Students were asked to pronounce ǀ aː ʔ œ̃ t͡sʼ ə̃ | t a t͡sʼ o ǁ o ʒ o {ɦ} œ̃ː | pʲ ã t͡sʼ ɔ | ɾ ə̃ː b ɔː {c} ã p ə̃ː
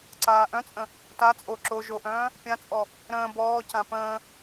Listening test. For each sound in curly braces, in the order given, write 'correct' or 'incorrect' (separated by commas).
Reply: incorrect, correct